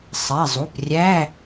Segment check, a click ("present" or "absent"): absent